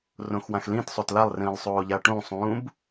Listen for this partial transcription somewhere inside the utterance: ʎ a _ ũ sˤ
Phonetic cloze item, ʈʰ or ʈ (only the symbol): ʈ